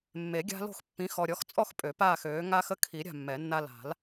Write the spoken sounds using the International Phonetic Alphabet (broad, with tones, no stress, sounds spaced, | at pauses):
mː e˨˩˦ ɡʲ a̤˦ l o̤˥˨ x pː ĩ˩˥ x ɔ˨ ɾʲ ɔ˩˥ x t͡sʼ ɔ˥˨ x pʼ ø˨˩˦ p aː˥˨ x øː˩˥ ŋ a˦ x ə˦ kʰ i˨˩˦ ɾʲ a̤˥˨ mː ɛ˨˩˦ nː a˦ l a̤˨˩˦ l